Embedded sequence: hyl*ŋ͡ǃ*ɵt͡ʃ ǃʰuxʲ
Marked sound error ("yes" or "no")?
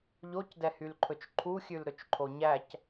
yes